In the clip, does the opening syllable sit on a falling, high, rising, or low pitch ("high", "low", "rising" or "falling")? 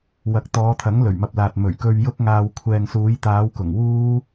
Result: rising